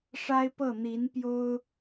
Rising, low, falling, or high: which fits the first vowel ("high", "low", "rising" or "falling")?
high